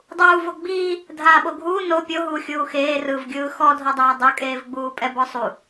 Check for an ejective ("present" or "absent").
present